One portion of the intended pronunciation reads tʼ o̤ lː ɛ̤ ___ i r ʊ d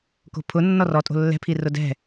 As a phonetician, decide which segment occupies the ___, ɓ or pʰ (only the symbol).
pʰ